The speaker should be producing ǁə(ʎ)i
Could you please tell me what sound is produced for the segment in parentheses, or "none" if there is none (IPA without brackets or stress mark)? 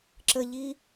ʎ